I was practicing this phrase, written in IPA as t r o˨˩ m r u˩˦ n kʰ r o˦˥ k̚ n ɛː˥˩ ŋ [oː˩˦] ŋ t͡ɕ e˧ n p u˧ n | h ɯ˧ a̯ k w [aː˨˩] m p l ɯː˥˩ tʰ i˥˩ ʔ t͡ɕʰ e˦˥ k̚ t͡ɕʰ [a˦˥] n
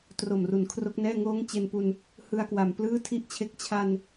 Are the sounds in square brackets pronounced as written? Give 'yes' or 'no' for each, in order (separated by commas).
no, no, no